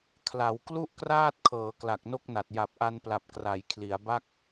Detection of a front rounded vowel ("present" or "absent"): absent